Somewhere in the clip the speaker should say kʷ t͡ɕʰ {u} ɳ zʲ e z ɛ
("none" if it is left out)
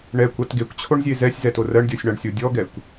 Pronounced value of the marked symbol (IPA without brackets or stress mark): o